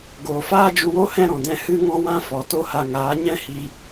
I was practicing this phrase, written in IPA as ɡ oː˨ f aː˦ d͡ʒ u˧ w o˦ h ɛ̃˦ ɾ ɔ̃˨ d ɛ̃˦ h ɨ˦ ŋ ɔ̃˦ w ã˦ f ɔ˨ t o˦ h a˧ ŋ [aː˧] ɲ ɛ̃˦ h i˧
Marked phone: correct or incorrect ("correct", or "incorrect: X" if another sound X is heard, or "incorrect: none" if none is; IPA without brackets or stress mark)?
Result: incorrect: aː˨˦